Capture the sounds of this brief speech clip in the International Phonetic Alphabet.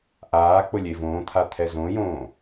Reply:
ʔ aː k͡p ʊ lʲ e v õː t̪ʰ a t̪ʰ ɛ z õ j õː

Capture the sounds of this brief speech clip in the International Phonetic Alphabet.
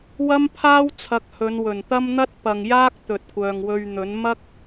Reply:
w ɐ˥ m pʰ aː˥ w t͡sʰ ɐ˨˥ k̚ h ɵ˨˧ n w ɵ˨˩ n t̪ ɐ˥ m n̪ ɐ˥ t̚ p ɐ˨ ŋ j aː˥ k̚ t̪ ɵ˨ t̚ kʷ œː˨ ŋ w ɵ˧ ɥ n̪ ɵ˨˥ n m ɐ˥ k̚

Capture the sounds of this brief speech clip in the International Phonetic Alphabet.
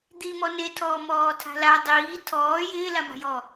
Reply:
d̪ i m ɔ n e tʰ ɔː m ɔː tʰ a̤ l a dˤ iː tʰ ɔː j ɪː l a m a̤ j ɔ

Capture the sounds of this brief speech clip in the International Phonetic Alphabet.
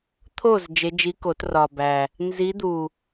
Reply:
t̪ʰ o˥˨ z d͡ʒ e˧˥ d͡ʒ i˧˥ k o˨˩˦ t r ɒ˨˩ b æ˨˩ | n z i˧˥ d̪ u˨˩

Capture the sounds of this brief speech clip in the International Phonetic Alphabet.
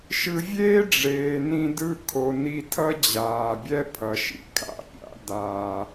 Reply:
ʃ ɯ˨ vʲ eː˦ ɖ͡ʐ eː˨ n ĩ˧ d ɯ˦˨ kʰ o˨ n i˧ tʰ ʌ˦ d͡ʑ aː˨ bʲ ɛ˦ pʰ ʌ˨ ʃ ḭ˨ kʰ a̰˧ pʲ a̰˦ d aː˨

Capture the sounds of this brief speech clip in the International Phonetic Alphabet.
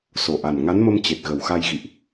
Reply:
s o˨˩ ʔ a˨˩ n ŋ a˨˦ n m ə˧ m t͡ɕ e˨˩ t̚ ɣ ə˨˩ w x a˧ j ɣ ḭ˧˨ ʔ

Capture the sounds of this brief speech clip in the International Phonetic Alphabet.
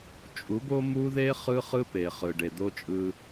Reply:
t͡ʃʼ u˨˦ b o˦ m u˦ ð e˦ χ ɯ˦ χ ɯ˦ p e˨ χ ɯ˨ ɖ e˨ d̪ o˦ t͡ʃʼ ɯ˦

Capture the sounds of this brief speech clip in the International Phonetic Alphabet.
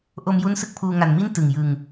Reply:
ʔ o˧ m j u˦˥ n s ɯ˥˩ k̚ pʰ uː˧ ŋ a˨˩ n m i˥˩ n t ɯ˨˩ ŋ j ɯ˧ ŋ

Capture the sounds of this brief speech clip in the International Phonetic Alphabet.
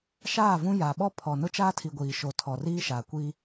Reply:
ʃ aː˦˨ v ũ˦ j a˨ ɓ ɔ˦ pʰ ɔ˨ n ʊ˦ t͡ʃ aː˦ tʰ i˨ ɡʷ iː˨ ʃ o˨ tʰ ɔ˨ r iː˦ ʃ a˨ kʷ i˦

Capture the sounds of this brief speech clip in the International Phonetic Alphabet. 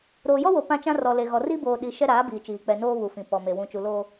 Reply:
ɾ oː˨ j ɔ˦ w o˨ p ã˦ t͡ʃ ã˦ r ɔ˨ l e˨ ɣ ɔ˨ r i˦ b oː˨ ɗ i˨ ʃ ɛ˦ ɾ aː˨˦ b iː˨ t͡ʃ iː˨ k͡p ɛ˨ n oː˦ β u˨ f ĩ˨ p ɔ˨ m e˨ w ũ˨ t͡ʃ u˨ l oː˦

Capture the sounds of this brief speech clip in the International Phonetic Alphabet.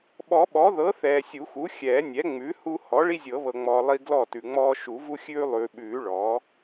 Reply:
ɓ ɔ˨˩˦ ɓ ɔ˩˥ ð ɤ˩˥ θ ɛː˨ sʲ u˨˩˦ x u˩˥ xʲ ɛː˨˩˦ nʲ ɛ˩˥ ŋ͡m ʉ˩˥ h u˦ h ɔ˩˥ ɭ i˦ zʲ ɤ˨˩˦ β ɤ˨ ŋ͡m ɔː˨ lˠ i˦ ɡ l ɔ˥˩ t ʉ˨ ŋ͡m ɔː˦ ʃ u˨˩˦ v u˦ xʲ ʉː˦ lˠ ʉː˨ ɓ ʉː˨˩˦ ɭ ɔ˩˥

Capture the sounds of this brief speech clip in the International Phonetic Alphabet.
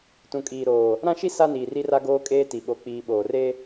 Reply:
t ũ˨ kʼ iː˨ ɾ oː˨ | ɾ ã˦ ʃ i˦ s a˦ n iː˨ r i˦ r a˦ ɡ oː˦ kʼ eː˦ t i˨ ɓ o˦ k͡p iː˦ ɓ oː˨ r e˦

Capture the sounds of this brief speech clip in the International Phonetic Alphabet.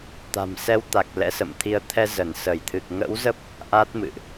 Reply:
t̪ a̤˨˩ m s ɛ˧ w t̪ a˨˩ k̚ l ɛ̰˧˥ s ə̰˧˨ m t̪ʰ i˧ ə̯ t̪ʰ ɛ˧ z ə˧˩ n s ə˧˩ j t̪ʰ ɨ˨˩ k̚ ŋ ə̰˧˥ w z ə˦˥ p̚ | ʔ a˦˥ t̚ m ɨ̰˧˨ ʔ

